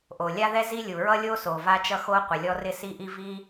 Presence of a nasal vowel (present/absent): absent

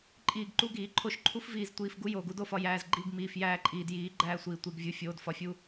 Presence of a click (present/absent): present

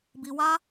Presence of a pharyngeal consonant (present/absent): absent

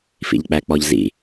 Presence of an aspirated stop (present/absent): absent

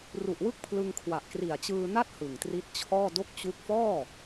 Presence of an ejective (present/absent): absent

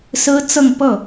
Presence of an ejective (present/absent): absent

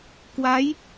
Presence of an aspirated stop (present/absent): absent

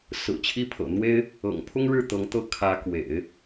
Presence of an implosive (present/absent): absent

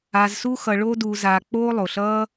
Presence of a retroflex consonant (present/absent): present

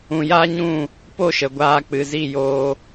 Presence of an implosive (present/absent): absent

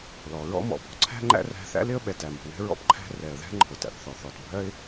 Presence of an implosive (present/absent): present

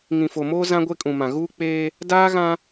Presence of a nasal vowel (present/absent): present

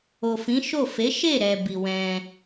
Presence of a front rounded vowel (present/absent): absent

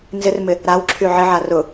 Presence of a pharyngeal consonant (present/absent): present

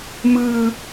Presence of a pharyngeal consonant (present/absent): absent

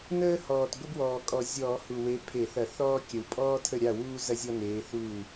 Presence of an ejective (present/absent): present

